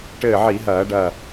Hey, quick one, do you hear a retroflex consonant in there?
yes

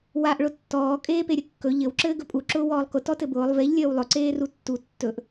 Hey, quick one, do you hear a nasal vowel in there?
no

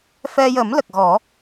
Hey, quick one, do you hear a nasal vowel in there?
no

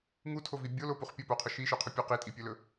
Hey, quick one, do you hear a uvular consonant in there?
yes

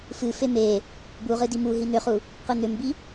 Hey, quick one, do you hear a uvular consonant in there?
yes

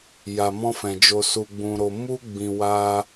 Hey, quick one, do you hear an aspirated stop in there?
no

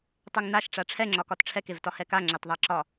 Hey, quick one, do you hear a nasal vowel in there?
no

